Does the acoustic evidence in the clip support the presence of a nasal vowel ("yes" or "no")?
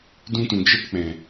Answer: yes